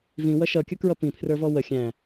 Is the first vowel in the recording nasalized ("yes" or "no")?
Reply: yes